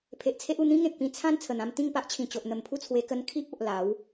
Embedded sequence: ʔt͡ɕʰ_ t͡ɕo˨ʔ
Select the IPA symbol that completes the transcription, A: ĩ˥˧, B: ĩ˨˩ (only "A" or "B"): B